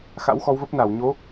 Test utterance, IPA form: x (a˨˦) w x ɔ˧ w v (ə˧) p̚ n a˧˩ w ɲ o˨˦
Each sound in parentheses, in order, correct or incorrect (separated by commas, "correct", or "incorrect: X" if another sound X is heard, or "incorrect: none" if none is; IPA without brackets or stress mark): incorrect: a̰˧˥, incorrect: ə˦˥